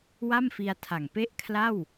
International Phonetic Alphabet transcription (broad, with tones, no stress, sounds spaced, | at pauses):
w a˥˩ m f i˧ a̯ tʰ a˨˩ ŋ p e˥˩ ʔ kʰ l a˥˩ w